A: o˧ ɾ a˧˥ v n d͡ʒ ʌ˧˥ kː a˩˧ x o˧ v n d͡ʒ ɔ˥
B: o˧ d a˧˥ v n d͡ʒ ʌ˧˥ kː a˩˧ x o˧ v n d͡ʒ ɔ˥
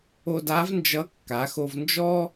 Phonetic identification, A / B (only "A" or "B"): B